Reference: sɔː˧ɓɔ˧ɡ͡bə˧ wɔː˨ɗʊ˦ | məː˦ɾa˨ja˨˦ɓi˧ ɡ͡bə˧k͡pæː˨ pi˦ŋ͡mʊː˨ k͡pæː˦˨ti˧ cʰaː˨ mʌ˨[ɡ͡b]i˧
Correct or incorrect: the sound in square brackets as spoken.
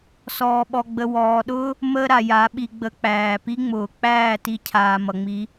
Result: incorrect: ŋ͡m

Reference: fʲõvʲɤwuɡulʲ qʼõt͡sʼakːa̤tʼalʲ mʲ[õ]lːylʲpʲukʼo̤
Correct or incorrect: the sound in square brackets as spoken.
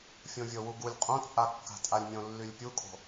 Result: correct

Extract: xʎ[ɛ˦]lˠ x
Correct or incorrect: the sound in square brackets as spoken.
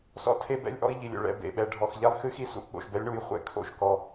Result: correct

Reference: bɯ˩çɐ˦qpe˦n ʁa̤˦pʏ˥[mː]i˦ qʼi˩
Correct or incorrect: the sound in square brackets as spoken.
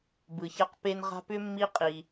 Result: correct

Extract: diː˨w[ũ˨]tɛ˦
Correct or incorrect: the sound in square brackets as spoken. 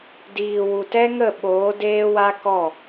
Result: incorrect: u˨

